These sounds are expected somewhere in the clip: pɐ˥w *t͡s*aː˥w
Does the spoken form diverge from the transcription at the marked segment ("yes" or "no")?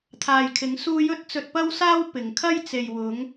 yes